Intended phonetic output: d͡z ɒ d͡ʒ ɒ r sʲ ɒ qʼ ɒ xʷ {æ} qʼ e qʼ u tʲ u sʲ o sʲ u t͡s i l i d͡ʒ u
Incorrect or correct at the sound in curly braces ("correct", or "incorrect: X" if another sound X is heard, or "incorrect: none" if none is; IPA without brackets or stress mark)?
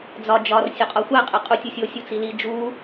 correct